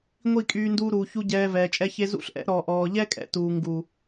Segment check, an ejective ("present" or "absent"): present